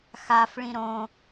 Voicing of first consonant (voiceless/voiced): voiceless